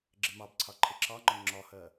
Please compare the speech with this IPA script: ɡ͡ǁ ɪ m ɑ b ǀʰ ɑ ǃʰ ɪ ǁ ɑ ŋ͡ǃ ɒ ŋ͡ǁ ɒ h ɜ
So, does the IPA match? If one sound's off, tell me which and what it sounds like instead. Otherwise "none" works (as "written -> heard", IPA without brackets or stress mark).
none